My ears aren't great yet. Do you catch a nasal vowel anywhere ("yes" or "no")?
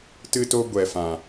yes